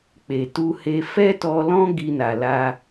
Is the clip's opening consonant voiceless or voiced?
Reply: voiceless